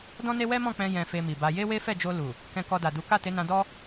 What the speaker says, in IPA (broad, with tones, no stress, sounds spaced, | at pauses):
d ɔ̃˦ n e˦ w ɛ˦ m ɔ̃˦˨ k͡p ɛ̃˧ j ɛ̃˧ f e˧ m i˨ b a˧ j e˦ w e˦ f ɛ˦˨ d͡ʒ o˧ l u˨ | k ɛ̃˧ k ɔ˧ d a˨ d u˨˦ k a˦˨ t e˨˦ n ã˧ d ɔ˦